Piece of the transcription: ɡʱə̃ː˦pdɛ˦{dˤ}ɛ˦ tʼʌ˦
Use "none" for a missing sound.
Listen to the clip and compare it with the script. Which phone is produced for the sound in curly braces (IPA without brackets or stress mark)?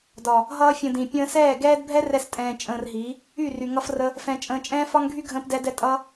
d